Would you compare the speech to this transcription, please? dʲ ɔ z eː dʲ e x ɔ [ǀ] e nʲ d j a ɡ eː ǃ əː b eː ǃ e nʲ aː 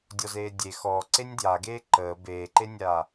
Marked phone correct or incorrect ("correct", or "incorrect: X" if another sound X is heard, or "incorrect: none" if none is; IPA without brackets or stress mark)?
correct